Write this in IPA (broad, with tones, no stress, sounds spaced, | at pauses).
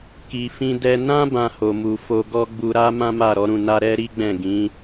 k i˨ f ĩ˧ d ɛ˧ n ã˦ b ã˧ h o˨ m u˨ f o˧ ɡ ɔ˦ ɡ͡b u˧ ɾ a˦ m ã˦ m a˦˨ ɾ ɔ˨˦ ɾ ũ˧ n a˦ ɾ ɛ˦ ɾ i˦ ɡ͡b ɛ̃˦˨ ɡ ĩ˨˦